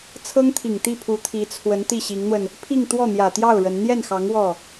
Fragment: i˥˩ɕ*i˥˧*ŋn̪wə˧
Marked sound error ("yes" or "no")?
yes